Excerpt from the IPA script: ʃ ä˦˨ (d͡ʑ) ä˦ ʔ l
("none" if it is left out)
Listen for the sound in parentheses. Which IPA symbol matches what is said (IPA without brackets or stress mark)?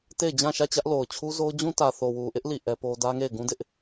t͡ɕ